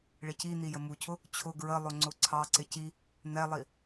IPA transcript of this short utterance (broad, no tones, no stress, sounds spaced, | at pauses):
ɭ ɪ c i n̪ i j ə m u cʰ ʊ | t͡ɕʰ ʊ ɡ ɹ ə lˠ ʊ ŋ͡ǀ ʊ ǀʰ ɑ ǀ ɪ c i | n̪ ɛ lˠ i